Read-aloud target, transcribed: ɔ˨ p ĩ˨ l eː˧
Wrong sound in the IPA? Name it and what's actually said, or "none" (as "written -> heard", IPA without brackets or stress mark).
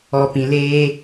none